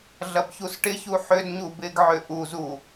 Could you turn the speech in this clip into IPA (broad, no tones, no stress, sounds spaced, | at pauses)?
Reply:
ɮ ɐ b ç u s ʈ ɪ ç u ħ ʏ d ɲ u b ɪ ɡ ʕ ʏ ʔ u z u